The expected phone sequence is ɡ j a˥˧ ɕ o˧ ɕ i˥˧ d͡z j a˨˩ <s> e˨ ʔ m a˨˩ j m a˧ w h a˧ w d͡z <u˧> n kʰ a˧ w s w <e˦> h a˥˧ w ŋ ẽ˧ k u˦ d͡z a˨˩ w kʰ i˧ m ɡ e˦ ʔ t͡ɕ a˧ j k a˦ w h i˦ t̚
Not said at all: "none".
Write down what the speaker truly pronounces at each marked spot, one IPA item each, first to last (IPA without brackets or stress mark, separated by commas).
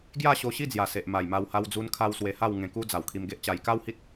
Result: s, u˧, e˧